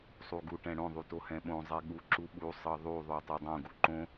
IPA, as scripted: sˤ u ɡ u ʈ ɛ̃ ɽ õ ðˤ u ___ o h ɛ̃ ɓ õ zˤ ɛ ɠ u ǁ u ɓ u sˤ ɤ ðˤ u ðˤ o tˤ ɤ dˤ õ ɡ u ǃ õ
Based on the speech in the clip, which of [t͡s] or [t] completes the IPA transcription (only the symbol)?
t